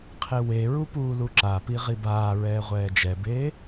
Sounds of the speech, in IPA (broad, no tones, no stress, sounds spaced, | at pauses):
qʰ e w e ɹ u p uː l u ǁ a p i ʁ i b aː ɹ ɛː ʁʷ ɛː d͡ʒ ɛ b eː